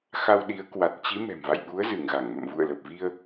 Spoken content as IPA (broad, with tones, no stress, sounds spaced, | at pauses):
x a˧ w ɗ i˨˦ ə̯ k w a˨˩ t̚ t͡ɕ i˨˦ m ɛ̤˨˩ m v a̰˧˨ j ɓ u˨˦ ə̯ z ɨ˧˩ ŋ ɣ a˧˩ ŋ m ə̰˧˨ m v ṵ˧˨ ə̯ l ə˨˩ p̚ v i˧ ə̯